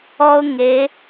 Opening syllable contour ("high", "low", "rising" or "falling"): high